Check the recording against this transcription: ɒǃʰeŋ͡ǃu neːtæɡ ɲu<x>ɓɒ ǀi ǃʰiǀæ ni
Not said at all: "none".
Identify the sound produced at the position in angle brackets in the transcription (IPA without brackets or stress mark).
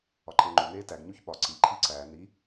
ç